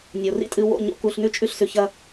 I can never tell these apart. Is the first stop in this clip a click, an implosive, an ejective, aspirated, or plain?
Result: ejective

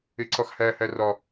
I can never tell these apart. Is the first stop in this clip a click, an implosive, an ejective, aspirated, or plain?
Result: click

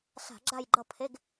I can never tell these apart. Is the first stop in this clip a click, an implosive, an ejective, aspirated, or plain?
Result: click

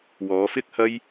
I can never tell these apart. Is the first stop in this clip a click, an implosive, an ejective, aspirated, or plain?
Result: plain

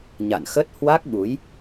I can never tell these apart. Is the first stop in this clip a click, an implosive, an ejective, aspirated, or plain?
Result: plain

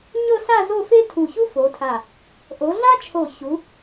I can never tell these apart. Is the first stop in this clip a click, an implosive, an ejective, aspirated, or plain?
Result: aspirated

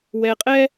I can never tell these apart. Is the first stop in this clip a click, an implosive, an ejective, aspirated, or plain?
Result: ejective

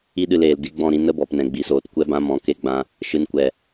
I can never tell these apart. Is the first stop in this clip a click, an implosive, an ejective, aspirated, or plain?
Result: implosive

